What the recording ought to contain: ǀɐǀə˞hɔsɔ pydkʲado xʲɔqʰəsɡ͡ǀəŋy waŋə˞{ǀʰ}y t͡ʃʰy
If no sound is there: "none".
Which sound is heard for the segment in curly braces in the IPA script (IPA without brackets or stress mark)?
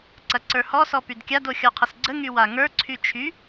ǀʰ